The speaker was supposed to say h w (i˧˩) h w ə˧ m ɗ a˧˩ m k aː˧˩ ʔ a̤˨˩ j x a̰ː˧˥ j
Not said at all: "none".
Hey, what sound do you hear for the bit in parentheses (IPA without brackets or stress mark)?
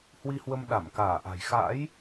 i˧